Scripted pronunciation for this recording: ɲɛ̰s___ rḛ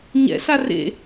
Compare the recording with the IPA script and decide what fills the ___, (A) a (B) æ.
A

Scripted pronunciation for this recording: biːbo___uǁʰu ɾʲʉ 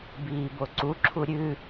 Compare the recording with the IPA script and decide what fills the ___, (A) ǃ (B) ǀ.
B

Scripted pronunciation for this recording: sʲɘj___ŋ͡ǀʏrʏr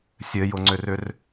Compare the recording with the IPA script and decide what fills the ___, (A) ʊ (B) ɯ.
A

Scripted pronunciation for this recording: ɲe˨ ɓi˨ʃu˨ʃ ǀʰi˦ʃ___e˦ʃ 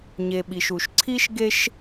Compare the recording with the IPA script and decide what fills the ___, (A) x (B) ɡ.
B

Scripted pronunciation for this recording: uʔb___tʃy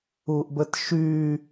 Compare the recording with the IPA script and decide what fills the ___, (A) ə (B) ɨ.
A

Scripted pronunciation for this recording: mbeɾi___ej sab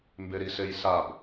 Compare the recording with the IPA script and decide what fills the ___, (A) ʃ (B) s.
B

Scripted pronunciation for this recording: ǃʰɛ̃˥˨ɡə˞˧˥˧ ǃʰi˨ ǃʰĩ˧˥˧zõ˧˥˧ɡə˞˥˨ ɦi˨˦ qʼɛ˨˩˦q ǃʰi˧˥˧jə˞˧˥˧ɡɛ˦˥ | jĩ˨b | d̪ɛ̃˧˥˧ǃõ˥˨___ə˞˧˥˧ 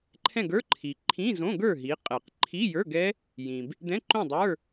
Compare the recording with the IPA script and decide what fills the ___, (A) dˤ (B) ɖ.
A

